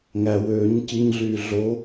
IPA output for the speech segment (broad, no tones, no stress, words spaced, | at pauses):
ŋæ wøːɲ ciɲɮyː ɮo